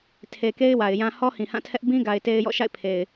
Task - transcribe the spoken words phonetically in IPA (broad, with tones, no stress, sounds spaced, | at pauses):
tʰ e˨ k e˦ ɪ̯ w a˨ ɪ̯ j ã˦ h ɔ˦ h ĩ˨ h ã˦˨ tʰ ɛ˦ ʔ b ĩ˦ ɡ a˨ ɪ̯ t e˦ ɪ̯ j ɔ̰˦˨ ʃ a̰˦˨ ɪ̯ pʰ e˨ ɪ̯